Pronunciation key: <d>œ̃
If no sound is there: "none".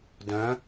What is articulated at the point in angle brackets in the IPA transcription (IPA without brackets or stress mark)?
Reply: d